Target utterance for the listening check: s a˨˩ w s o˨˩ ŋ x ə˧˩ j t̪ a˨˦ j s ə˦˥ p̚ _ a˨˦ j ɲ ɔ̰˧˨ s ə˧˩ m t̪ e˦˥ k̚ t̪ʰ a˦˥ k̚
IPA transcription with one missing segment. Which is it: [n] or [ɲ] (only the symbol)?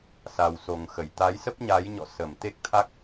ɲ